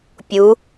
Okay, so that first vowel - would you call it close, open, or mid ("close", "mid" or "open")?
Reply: close